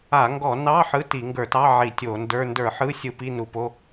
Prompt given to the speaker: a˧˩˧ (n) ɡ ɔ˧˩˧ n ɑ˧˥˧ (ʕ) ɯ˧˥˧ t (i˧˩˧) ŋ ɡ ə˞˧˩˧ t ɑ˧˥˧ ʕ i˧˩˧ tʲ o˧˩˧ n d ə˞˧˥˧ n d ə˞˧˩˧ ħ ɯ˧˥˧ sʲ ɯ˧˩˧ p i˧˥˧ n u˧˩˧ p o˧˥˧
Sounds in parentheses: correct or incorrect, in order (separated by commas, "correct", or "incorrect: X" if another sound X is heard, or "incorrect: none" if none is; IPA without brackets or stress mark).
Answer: incorrect: ŋ, incorrect: ħ, correct